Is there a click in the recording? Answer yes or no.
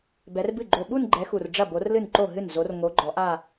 yes